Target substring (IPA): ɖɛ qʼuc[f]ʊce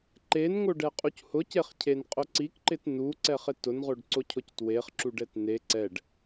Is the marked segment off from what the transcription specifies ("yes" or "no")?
yes